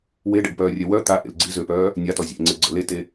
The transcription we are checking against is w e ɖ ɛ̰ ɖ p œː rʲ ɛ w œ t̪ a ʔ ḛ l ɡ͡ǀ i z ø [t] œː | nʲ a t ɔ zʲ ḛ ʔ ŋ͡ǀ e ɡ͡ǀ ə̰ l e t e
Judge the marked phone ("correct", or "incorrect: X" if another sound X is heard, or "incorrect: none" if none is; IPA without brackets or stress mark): incorrect: p